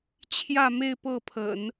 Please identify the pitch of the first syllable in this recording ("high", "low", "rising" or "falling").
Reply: falling